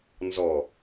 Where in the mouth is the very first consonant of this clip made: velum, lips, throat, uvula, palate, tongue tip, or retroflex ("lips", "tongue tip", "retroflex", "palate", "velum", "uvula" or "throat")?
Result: tongue tip